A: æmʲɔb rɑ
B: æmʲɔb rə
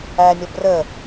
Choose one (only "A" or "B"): B